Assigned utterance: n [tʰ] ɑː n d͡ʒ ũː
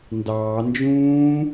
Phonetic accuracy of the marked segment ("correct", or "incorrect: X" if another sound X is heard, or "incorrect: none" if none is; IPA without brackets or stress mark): incorrect: d